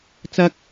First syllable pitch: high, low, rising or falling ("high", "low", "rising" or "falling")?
high